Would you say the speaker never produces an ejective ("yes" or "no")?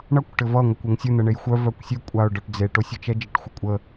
no